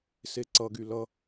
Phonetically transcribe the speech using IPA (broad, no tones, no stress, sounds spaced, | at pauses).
s e ǀ ʌ ɡ y l ʌ